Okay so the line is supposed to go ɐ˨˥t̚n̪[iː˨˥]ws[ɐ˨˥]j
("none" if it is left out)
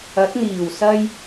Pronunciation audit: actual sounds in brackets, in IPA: iː˨˩, ɐ˧

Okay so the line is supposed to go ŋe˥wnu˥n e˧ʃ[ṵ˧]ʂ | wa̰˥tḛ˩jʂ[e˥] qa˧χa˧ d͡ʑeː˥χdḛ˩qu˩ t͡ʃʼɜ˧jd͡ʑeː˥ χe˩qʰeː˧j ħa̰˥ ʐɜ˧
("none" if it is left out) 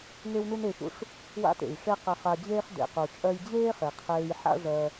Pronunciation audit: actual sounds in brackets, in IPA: ṵ˧, e˥

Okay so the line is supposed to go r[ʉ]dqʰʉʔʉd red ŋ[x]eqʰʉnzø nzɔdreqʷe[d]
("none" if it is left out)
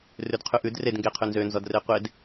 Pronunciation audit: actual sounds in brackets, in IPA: ʉ, ɡ, d

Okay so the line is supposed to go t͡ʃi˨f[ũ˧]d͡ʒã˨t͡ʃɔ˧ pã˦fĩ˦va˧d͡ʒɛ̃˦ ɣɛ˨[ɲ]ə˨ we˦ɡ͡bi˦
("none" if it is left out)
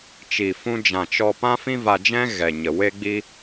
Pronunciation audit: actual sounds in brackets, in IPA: ũ˧, ɲ

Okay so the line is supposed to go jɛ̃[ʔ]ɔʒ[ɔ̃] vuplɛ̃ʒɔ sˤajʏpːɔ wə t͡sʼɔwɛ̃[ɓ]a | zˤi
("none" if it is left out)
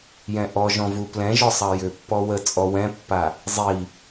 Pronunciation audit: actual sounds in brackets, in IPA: ʔ, ɔ̃, pː

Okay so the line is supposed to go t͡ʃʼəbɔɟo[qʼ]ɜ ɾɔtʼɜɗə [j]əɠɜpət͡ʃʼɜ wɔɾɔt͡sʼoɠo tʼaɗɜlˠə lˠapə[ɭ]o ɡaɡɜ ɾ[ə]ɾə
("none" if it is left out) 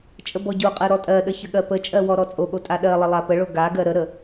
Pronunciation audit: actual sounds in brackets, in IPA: qʼ, ç, ɭ, ə

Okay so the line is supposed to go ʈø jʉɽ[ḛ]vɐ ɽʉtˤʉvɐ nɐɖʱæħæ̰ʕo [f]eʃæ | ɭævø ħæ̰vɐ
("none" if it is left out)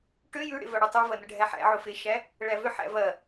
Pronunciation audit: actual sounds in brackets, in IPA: ḛ, f

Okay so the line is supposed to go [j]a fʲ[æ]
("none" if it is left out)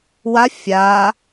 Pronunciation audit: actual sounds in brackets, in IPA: w, a

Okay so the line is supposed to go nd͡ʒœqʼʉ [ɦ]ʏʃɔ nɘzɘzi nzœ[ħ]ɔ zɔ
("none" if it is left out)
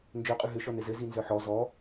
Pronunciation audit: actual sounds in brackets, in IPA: ɦ, ħ

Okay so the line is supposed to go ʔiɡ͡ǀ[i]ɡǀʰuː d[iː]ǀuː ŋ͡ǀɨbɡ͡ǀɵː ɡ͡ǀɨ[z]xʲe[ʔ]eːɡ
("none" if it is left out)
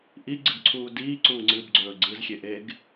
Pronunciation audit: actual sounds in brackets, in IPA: ɨ, iː, z, ʔ

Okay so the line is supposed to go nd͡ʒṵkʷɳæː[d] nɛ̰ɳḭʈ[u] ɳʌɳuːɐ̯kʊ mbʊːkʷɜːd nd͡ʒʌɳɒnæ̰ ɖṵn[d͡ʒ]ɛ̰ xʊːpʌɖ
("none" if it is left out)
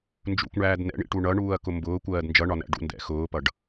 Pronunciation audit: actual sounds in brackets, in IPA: d, u, d

